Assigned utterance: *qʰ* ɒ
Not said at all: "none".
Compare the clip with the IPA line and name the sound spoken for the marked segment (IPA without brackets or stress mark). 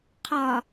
qʰ